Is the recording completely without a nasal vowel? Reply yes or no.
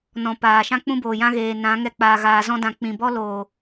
no